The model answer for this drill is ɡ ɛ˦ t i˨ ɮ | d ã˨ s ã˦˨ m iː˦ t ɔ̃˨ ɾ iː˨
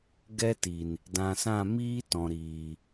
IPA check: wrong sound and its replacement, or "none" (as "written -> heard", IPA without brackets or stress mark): ɮ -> n